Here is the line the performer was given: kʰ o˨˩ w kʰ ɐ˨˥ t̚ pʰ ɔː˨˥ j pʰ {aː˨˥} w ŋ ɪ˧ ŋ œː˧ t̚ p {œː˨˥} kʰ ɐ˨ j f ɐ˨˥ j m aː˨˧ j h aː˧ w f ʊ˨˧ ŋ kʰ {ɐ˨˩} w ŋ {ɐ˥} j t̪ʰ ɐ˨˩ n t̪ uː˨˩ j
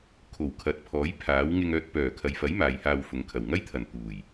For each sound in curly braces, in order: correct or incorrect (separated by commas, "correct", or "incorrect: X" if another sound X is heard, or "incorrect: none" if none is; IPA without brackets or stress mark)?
correct, incorrect: œː˨˩, correct, correct